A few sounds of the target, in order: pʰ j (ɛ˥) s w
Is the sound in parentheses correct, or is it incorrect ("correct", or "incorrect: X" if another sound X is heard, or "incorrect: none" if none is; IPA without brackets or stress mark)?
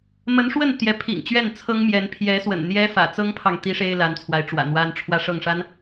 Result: incorrect: ɛ˧˥